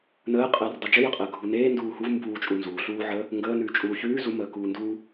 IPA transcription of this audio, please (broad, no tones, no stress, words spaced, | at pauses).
nəːqʼəːrdˤe d͡ʒəjəqʼəː ɡʱuneː nduːhuv mbuːt͡ʃʼu nzuːɬuːʕəː | ŋɡəː nʉːt͡ʃʼuːçʉː zuməː kuːnduː